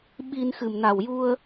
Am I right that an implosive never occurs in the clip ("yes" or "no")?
no